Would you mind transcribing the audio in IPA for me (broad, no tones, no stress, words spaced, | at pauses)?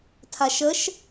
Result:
tʰaʃəʃ